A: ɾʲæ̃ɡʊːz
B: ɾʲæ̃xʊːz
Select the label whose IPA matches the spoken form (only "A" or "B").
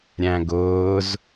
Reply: A